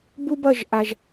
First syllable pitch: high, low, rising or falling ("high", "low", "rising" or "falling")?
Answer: high